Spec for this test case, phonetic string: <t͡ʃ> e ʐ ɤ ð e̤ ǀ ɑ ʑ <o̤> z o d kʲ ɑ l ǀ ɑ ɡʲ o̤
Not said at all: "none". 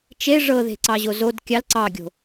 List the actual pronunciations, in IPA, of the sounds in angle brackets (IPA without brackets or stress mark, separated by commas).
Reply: t͡ʃ, o